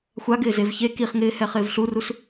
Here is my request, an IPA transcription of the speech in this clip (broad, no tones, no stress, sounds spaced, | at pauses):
xʷ a ɡ ɪː z e v ç e k i χ ŋ ɪː h ɛ χ ɪː v ɬ u r u s